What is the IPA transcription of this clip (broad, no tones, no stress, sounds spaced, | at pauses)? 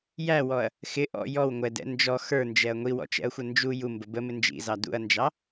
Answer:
j æ w ɔ ɐ̯ | x ɪ ʔ ɔ̰ j ɔ w ŋʷ ɛ d ɛ̰ n d͡ʒ ɔ x ə˞ n d͡ʒ ɛ ɐ̯ ŋʷ i w ɔ̰ t͡ʃ ɛ̰ ɐ̯ xʷ ə n d͡ʒ u j u m b ə b ə m ɪ n d͡ʒ ḭ z ɑ d ṵ ɐ̯ n d͡ʒ ɑ